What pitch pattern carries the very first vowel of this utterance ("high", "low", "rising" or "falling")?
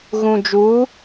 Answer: low